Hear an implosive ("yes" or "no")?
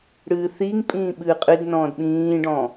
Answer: yes